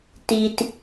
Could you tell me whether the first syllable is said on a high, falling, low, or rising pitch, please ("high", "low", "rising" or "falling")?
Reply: low